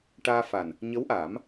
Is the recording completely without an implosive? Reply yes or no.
yes